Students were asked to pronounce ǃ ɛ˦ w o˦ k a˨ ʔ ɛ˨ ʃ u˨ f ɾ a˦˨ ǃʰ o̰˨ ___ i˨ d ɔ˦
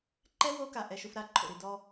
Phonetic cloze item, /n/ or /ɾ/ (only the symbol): ɾ